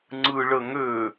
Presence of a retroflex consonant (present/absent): present